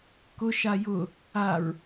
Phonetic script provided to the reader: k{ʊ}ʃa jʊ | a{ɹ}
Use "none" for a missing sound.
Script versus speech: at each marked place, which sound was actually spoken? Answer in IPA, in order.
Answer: ʊ, ɹ

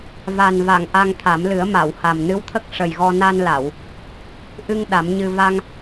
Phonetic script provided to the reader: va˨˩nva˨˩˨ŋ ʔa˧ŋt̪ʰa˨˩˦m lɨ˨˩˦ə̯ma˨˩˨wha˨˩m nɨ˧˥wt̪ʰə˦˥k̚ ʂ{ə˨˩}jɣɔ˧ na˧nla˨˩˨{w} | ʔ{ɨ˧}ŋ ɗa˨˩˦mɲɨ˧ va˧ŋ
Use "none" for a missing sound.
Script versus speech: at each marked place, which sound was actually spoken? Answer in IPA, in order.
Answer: ə˨˩, w, ɨ˧

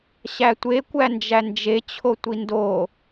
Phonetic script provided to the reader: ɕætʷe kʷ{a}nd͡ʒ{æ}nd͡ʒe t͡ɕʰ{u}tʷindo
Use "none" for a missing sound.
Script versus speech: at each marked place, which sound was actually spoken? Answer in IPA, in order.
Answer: æ, æ, o

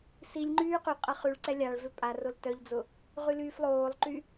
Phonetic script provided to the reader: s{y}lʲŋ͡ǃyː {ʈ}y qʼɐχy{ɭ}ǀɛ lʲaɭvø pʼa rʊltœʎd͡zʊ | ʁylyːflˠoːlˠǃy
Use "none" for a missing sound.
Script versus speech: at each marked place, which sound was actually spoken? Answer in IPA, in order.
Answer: i, q, ɭ

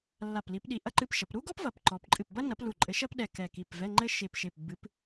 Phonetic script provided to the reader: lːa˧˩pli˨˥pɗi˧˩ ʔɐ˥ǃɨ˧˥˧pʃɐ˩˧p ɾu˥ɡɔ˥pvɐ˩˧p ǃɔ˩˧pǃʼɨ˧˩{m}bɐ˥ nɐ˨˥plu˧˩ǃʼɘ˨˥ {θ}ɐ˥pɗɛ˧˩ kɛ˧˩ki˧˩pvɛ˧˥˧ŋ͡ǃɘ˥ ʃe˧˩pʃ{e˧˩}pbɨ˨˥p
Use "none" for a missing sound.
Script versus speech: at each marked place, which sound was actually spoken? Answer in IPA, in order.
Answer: p, ʃ, e˧˩

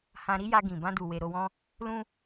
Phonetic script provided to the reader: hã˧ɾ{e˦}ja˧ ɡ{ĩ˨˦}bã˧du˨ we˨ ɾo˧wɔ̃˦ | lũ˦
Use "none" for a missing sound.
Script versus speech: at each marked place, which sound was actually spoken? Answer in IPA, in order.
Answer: i˦, ĩ˨

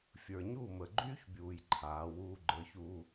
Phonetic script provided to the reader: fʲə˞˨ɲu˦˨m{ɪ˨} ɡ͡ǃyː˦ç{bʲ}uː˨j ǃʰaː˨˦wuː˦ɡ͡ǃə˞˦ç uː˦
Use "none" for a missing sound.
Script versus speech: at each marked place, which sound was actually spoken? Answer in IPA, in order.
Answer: ə˨, bʲ

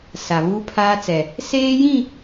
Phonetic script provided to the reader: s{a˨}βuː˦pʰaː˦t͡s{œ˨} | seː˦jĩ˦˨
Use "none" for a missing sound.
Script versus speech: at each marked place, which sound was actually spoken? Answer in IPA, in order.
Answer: a˨, ɛ˨

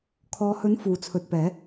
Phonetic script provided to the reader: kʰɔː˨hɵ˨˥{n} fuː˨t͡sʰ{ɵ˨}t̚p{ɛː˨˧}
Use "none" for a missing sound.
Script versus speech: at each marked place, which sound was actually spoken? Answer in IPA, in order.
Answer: n, ɵ˨, ɛː˨˧

